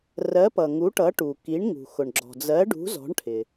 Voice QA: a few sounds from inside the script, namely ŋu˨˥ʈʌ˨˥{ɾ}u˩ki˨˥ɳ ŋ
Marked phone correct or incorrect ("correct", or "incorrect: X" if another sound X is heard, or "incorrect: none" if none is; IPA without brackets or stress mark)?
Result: incorrect: ʈ